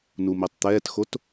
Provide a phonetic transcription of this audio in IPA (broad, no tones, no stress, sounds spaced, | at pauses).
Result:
n u m i tˤ t̪ ɛː t x o t